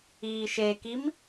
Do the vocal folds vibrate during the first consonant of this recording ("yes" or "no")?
no